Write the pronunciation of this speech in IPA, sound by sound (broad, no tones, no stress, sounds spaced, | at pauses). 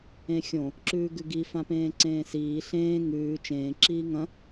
ẽ xʲ õ | ǁ ʉː ɡ ʉ ɡ i f ã p ẽː ǀ ẽː s iː ɬ ẽː ŋ ʉː t͡ʃ ẽː ǁ iː ŋ ɐ̃